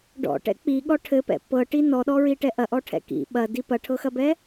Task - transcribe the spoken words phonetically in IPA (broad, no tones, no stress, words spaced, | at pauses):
ɖɔ̰ʈɛ̰ k͡piɠɔ ʈʰɘpɛ̰ pɤʈi nɔɗɔɹiʈɛ ʔɐʔɔʈʰɛ̰ kḭ ɓɐdi pɐʈʰɤxɐbɛ